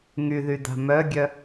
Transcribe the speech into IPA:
ŋyðyda̤ mœɡʲœ

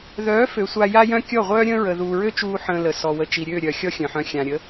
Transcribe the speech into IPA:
ðœː˨˦ fø˨sʷa˧ja˦jœ̃˦ kʲɔ˦˨ʁʷœː˦ɾʲə̃ː˦ ɹə˨ðuː˨ɹø˦t͡ʃuː˧ ħə̃ː˧lə˨ sɔ˨wə˨t͡ʃi˨ɾʲøː˦˨ ɾʲœ˨ xʲɔ˦xʲœ̃˨ħœ̃˧ xʲã˨ɾʲə˨˦

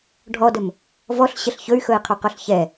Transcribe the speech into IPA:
ɖʱɔdɵm | vɔɬɕəɬ çɵy̯xɵi̯qʰɵqɵɬ çɛ

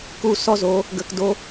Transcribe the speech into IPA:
ku˧sɔ˦zo˨˦ | ɡə˨kdo˧

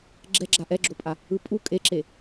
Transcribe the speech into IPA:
ɡ͡ǁɛɡ͡ǁa ʔɛɡ͡ǁopʼa | ɯpʼu kʼeǁe

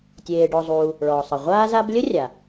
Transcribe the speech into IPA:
tʲeː˨ ɖɔ˨zˤuː˨ | ɭɔː˩sˤə˩ ʁʷaː˦za˦b lʲə˥rʲa˩

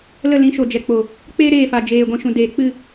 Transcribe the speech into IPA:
lə˦˨lĩ˨˦ʃo˨ d͡ʒɛ˨k͡po˨ | k͡peː˦ ɾeː˦˨fa˨d͡ʒeː˨ ɡʷĩ˧ʃũ˧ deː˨k͡pɨ˦˨

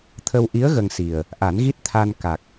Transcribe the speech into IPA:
t̪ʰə˧wʔi˧˥ə̯ ɣə˧ŋsi˨˩ə̯ | ʔa˨˩˦nɣi˦˥t̚ t̪ʰa˧n ka˨˩k̚

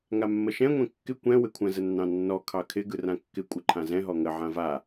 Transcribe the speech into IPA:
ŋamːəʃɛ̃ ŋʷɛ̃kːɪ kʷɛ̃ wɪkʷʰə̃ zənːɑ̃nːɔ kʰɑkʰɪ ɡɯrãkːɪ kʷʼɯǃʰãzɛ̃ ɦɔŋə ʕãva

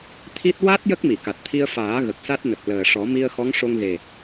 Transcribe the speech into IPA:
t̪ʰi˦˥t̚ wa˦˥t̚ jə˦˥k̚mi˨˩˨ka˨˩t̚ t̪ʰi˧ə̯faː˨˩˦ ɣə˨˩k̚sa˦˥t̚nə˨˩k̚ ləː˨˩ʂɔ˨˩˦ mi˧ə̯xɔ˧˥ŋʂo˧ŋɣe˨˩

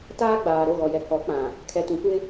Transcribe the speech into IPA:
taː˦ɡ͡baː˨ ɾo˦˨ɣɔ˨ jɛ˨kɔ˨˦k͡pã˨ | kʰɛ˨tũ˨kʷɪ˦

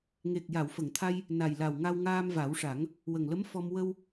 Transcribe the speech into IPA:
ŋe˨˩k̚ ja˨˩˨wfə˨˩˨ŋt̪ʰa˧j | na˨˩jla˨˩w ŋa˧wŋaː˧mva˨˩˦wʂa˨˩˦ŋ | wə˨˩ŋlə˧˥m fɔ˧m wə˧w

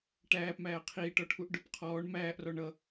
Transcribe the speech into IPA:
ʈæːpmæː qʰiːʈɔʈʰuʔ ɖʊp qʰɔːɳ mæːʔrɔ ɳʌ

